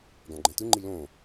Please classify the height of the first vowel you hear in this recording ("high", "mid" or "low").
low